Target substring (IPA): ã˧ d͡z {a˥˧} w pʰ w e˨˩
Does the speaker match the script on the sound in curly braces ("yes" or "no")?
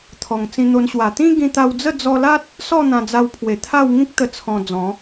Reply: no